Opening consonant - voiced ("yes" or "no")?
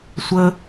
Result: no